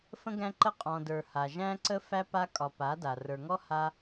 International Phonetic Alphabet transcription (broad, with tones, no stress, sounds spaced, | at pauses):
f ə̃˦ ɡ æ̃˦ ǃ ə˦ qʼ ɔ̃˨ d ə˞˨ h a˨ ʒ æ̃˦ ǀ ə˦ f æ˦ p a˦ kʼ ɒ˧ p a˨˦ d a˨ r ə˞˨ ŋ ɔ˦ h a˦